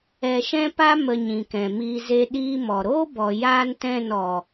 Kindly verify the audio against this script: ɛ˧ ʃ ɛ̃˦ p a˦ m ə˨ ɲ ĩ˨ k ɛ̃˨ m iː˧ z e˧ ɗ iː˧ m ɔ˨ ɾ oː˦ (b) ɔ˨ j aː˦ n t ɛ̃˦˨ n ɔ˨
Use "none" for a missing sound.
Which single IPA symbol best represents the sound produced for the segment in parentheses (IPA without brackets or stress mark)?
b